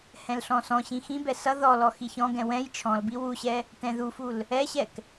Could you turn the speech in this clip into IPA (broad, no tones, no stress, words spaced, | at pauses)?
hɛ̃lɬɔ̃sɔ̃ɕĩ xĩbɛ sʌ ðɔlɔ xiçɔ̃ɡɛ̃ wɛ̃j t͡ʃʰɔ̃lbi wuɕɛ | tɛ̃ðuful | ɛɕɛk